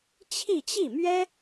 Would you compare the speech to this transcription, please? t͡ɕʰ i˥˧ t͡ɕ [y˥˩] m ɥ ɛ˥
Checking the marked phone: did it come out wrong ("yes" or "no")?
yes